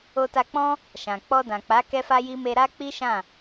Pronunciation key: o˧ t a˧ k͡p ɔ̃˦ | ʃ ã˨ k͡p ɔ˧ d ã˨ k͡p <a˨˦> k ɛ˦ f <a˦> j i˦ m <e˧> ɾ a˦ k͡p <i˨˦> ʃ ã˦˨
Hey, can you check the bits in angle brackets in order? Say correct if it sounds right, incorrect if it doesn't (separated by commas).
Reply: correct, correct, correct, incorrect